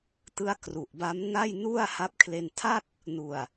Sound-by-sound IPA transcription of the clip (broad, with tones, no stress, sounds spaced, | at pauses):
t ɯ˦˥ a̯ k r u˨˩ ʔ b a˦˥ m n a˥˩ j n u˥˩ a̯ h a˦˥ p̚ kʰ l e˧ n tʰ a˥˩ t̚ | n u˨˩ a̯